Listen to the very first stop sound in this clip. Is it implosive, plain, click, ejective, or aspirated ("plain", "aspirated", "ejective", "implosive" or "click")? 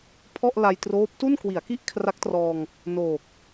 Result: aspirated